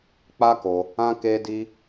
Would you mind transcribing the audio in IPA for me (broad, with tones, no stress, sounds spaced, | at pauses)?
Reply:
k͡p a˦ k o˧ | ã˦ k e˦ d i˦